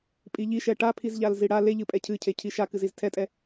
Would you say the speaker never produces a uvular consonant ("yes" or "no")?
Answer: yes